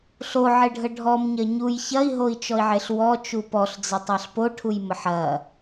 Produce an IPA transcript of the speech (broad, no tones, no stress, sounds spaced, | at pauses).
ɬ o ʕ e ɖʱ ə ɖʱ ɔ m ɲ ɐ ɲ u j ç ɐ i̯ ɦ o i̯ t͡ʃ ɔ i̯ ʕ e ɬ w ɔ t͡ʃ u p ɔ ɬ d͡z ə tˤ a ɬ p o ʈʰ u j m ə ħ ɐ